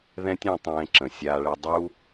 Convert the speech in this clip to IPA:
ð ɛ̃˦ tʲ ɛ̃˧ tˤ ɛ̃ː˧ ǁ ə̃˨ sʲ aː˧ ɭ ɛ˧ dˤ uː˧

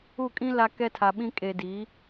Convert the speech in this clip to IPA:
u˦˨ kʼ ĩ˦ l a˦ k ɛ˦ tʰ a˨ ɓ ĩ˦ kʼ e˨ d i˨˦

